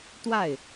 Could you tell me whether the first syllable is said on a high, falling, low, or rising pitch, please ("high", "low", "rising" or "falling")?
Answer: falling